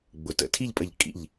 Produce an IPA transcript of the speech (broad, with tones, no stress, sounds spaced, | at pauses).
ɡ͡b ʊ˩ t ə̰˧˩ tʰ i˥˧ ʎ pʼ ə˧˩ ʎ kʼ ḭ˧˩ ʎ